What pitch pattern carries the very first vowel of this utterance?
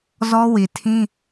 high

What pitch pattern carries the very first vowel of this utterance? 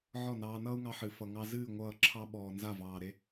falling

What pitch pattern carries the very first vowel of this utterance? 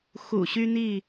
low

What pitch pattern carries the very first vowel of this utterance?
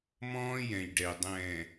high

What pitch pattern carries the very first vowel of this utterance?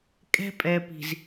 high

